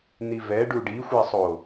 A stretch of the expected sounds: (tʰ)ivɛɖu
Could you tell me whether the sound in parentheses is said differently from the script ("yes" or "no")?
yes